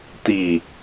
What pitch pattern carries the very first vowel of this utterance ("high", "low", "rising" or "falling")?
low